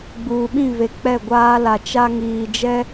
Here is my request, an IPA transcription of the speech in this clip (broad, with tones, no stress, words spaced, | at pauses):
ɡ͡buː˨ɓĩ˦˨ve˨ k͡pɛ˦˨ɡʷaː˦ la˨t͡ʃa˦ ŋiː˨d͡ʒɛ˦